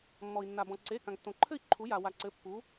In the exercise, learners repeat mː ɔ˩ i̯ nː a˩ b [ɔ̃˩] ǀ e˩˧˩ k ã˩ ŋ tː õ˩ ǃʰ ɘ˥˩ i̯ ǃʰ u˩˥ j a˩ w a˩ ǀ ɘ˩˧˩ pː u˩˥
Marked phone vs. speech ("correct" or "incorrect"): correct